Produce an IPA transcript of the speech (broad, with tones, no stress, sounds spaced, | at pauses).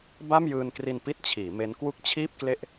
b a˥˩ m j ɯː˧ n k r i˧ n p i˥˩ t̚ t͡ɕʰ iː˩˦ m e˦˥ n k w u˥˩ k̚ t͡ɕʰ iː˥˩ p̚ k l e˥˩ ʔ